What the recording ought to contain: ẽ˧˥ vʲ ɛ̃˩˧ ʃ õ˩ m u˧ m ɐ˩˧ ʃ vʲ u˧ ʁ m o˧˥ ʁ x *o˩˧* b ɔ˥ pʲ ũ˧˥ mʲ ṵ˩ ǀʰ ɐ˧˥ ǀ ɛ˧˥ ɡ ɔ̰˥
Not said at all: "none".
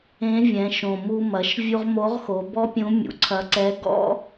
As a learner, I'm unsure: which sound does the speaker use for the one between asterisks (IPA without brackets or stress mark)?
o˩˧